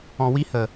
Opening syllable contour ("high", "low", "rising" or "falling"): low